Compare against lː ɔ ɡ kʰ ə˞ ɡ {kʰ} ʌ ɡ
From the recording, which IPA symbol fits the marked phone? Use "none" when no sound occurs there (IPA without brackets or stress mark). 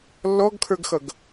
x